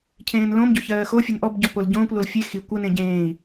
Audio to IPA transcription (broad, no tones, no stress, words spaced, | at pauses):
cʰẽːnlõmɟo çɜːxofʲen ʔɔbɟɔ polɟõːkʷlol fʲe xi kʷɜnẽ ɟẽːi̯